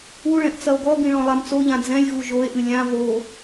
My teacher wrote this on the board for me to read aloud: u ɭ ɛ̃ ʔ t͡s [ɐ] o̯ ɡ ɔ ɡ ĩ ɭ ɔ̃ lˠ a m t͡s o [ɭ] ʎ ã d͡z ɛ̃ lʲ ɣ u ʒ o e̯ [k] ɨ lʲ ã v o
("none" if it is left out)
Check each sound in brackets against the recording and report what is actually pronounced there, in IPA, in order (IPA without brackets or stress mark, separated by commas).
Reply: ɐ, none, ʔ